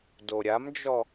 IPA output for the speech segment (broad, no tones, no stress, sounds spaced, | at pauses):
d o ɾʲ a m d͡ʒ ɔ